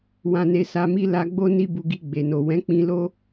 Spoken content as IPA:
w ã˧ n e˧ s a˧ m i˦ l a˧ ɡ͡b o˦ n i˦ b u˧ ɡ i˧ ɡ͡b e˨ n o˨ w ɛ̃˨˦ k͡p ĩ˧ l o˦

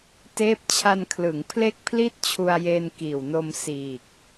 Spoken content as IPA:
t eː˦˥ p̚ t͡ɕʰ a˧ n kʰ l ɯ˩˦ ŋ pʰ l e˥˩ k̚ pʰ l i˥˩ t̚ t͡ɕʰ u˧ a̯ j eː˧ n k iː˨˩ w n o˧ m s iː˨˩ k̚

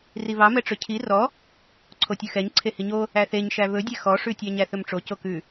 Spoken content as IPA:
r i β ɑ m ɛ ʈ͡ʂ ɵ cʰ i r ɔ | ǀʰ o tʲ ɵ x ɛ ɲ ǀʰ e h i ɲ o | æ θ e ɲ ʃ æ β ɵ dʲ ɛ x ɔ ʂ ʉ tʲ ɑ ɲ æ θ ɵ m ʈ͡ʂ o c o k ʉ

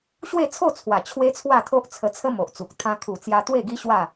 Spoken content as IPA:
ɕ w e˥˧ t͡sʰ o˥˧ t͡sʰ w a˨˩ t͡ɕʰ w e˦ t͡sʰ w a˥˧ t̪ʰ o˦ ʔ t͡sʰ ə˧ t͡sʰ ə˦ m o˨ ʔ t͡s u˨ k̚ t̪ʰ ã˧ kʰ u˨˩ t͡s j a˧ t̪ w e˥˧ ɡ i˦ ɕ w a˥˧

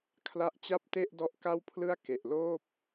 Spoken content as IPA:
kʰ l a˦˥ ʔ t͡ɕ a˥˩ p̚ t e˥˩ ʔ d ɔ˦˥ ʔ k a˥˩ w pʰ l ɯ˥˩ a̯ k e˨˩ ʔ l oː˥˩ p̚

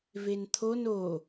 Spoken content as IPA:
v e n t̪ʰ o n o

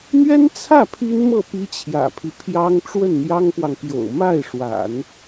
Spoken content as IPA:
n̪ ɥ ɛ˥ n t͡sʰ ä˥˩ pʰ i˥ n m ɤ˥˩ p i˥ t͡ɕʰ j ä̰˨˩ pʰ i˦ pʰ j ɑ˥ ŋ ʈ͡ʂ w ə˥˩ n n̪ j ɑ˥ ŋ p w ɑ˨ ŋ p j o̰˨˩ ʊ̯ m a˥˩ ɪ̯ ʂ w a̰˨˩˦ n

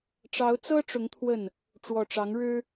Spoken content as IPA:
ʈ͡ʂ ɑ˨˦ ʊ̯ t͡s ɤ˦ ʈ͡ʂ ʊ˨˦ ŋ t̪ʰ w ə˥˨ n | ʈ͡ʂ w ɔ˨˩ ʈ͡ʂ ɑ˨˦ ŋ ɻ ɻ̩˦

